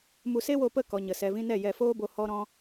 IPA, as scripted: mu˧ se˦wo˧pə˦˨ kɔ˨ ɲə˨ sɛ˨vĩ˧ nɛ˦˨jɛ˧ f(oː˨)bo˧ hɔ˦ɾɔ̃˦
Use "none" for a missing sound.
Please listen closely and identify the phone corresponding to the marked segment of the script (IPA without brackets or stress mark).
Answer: oː˦